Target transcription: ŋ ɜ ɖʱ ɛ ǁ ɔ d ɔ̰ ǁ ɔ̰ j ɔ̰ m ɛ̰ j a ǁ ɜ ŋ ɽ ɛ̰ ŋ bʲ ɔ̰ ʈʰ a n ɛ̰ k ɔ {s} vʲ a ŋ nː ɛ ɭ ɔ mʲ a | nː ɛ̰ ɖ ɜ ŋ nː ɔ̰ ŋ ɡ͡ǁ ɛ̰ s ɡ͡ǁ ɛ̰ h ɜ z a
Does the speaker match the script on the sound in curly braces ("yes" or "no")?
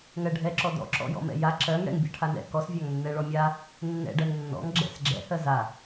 yes